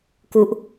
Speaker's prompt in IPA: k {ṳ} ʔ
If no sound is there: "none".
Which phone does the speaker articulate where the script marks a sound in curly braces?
u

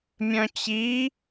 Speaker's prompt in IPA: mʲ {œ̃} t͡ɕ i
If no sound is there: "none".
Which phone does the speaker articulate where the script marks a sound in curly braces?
œ̃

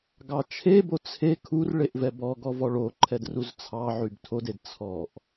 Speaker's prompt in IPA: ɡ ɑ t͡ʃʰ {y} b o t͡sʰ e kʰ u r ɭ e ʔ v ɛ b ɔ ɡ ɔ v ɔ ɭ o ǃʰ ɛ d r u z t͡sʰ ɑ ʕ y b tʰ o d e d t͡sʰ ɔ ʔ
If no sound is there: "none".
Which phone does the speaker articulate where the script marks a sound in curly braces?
e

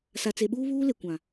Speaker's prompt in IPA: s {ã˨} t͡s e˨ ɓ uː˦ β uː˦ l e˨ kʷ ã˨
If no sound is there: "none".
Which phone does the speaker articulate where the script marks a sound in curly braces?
a˨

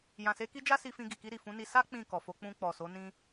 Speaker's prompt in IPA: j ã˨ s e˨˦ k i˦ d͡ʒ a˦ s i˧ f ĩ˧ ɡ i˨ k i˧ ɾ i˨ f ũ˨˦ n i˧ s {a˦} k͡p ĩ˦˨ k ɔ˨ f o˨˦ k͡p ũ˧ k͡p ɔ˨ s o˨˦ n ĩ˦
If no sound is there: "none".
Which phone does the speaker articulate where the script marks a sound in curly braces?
a˦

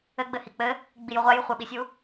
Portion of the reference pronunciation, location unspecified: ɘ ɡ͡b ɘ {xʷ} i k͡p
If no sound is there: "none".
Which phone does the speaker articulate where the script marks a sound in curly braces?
h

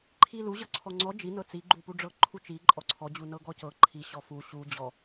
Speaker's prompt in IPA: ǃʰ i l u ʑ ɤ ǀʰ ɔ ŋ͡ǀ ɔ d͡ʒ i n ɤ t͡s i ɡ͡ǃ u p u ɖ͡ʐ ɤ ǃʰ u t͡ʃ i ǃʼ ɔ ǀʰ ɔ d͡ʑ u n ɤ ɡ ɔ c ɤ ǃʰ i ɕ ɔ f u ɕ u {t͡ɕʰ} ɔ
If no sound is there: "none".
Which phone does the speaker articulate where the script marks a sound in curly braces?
d͡ʑ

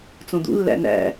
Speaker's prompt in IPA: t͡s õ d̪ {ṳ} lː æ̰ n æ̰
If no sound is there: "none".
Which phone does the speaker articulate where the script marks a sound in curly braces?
ṵ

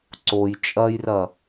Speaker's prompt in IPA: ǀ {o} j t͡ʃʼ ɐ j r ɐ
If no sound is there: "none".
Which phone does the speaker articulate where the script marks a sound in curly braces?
o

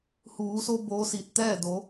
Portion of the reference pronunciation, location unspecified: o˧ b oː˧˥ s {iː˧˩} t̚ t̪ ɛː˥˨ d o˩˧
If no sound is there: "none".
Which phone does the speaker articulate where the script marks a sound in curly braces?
iː˧˩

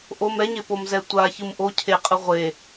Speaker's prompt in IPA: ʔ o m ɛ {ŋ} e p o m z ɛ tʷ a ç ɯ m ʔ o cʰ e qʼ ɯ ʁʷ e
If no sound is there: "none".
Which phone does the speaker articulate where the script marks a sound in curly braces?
ɲ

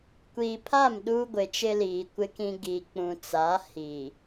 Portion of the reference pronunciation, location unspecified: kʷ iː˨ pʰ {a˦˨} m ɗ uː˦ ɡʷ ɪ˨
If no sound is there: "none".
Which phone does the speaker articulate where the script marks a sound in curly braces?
a˦˨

